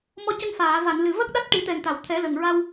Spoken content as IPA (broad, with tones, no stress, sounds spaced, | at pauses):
m ɔ˧ c ə˧ ŋ f aː˨˩˨ v a˨˩˨ n l ɨ˨˩ v ə˦˥ k̚ ɗ a˦˥ t̚ ʈ i˨˩˦ t̪ ɛ˨˩ ŋ t̪ a˨˩˨ w t̪ʰ ɛ˨˩˦ l ə˨˩ ŋ ɹ a˧ w